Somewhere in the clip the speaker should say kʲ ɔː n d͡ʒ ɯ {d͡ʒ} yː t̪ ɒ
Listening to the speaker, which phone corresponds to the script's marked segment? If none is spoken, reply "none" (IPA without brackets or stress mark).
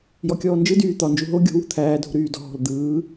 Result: d